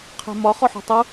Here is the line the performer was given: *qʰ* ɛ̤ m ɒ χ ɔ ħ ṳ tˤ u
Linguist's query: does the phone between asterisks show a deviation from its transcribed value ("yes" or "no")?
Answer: no